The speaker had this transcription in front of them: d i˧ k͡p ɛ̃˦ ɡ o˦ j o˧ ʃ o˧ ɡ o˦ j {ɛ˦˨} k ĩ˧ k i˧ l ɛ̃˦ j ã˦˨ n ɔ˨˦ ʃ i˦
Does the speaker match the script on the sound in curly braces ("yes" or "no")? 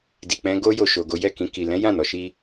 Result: yes